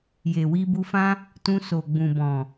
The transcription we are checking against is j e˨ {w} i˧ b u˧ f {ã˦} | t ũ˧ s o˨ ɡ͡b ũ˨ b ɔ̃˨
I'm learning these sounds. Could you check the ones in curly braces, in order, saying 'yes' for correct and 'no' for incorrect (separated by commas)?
yes, yes